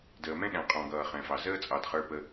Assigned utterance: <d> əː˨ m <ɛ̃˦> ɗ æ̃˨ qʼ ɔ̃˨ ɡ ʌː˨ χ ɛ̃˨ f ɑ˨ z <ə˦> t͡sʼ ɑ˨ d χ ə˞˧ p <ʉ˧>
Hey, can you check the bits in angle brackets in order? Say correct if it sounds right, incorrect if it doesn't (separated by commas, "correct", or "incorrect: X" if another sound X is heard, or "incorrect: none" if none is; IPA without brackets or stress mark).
correct, correct, incorrect: əː˦, incorrect: ə˧